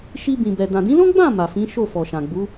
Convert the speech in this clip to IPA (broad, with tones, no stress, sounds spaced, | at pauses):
ʃ i˧ b ĩ˨ b ɛ˨ d ã˨ d ĩ˨˦ l ɔ̃˦ ɡ͡b ã˦˨ m a˨ f ĩ˨˦ ʃ o˦˨ f ɔ˨ ʃ ã˨ ɡ͡b u˨˦